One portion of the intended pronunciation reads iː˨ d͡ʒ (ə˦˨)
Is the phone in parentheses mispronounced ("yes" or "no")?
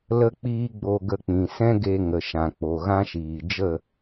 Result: no